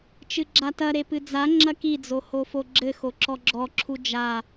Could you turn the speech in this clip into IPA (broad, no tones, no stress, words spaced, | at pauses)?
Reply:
t͡ʃɨɡ͡ǁatɐɾe pɨd͡za ŋ͡ǁɐkid͡zo hofoɡ͡ǁɘ xoǁɔɡ͡ǁɔǁʰu d͡ʒa